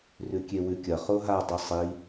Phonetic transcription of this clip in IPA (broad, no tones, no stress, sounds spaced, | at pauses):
r ʉ kʲ e w ʉ kʲ ɐ χ o ɦ a dˤ ʉ sˤ i